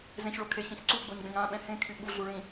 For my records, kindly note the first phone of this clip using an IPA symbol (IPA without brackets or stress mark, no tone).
z